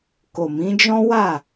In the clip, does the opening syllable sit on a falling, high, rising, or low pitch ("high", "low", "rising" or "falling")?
low